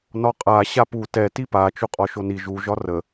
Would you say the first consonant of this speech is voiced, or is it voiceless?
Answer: voiced